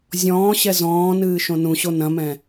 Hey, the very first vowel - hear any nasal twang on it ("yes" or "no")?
yes